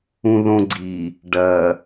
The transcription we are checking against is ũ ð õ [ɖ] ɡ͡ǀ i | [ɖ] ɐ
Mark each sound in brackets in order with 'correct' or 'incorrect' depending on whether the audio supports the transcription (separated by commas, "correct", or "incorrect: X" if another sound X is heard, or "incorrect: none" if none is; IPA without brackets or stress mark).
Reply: incorrect: none, correct